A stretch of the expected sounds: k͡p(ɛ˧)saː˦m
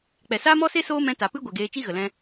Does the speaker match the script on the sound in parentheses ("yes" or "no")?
no